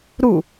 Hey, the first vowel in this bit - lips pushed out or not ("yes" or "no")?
yes